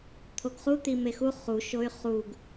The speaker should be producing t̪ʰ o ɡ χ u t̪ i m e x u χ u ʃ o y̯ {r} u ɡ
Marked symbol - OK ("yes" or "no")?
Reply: no